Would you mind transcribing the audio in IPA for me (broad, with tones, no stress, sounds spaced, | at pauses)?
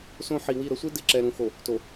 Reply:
s õ˦ ħ i˨ w i˦˨ ɾ ə˦ sʷ i˦ d ɪ˨ ǁ ɛ˨ ɾ ũ˨ x o˨ | t o˨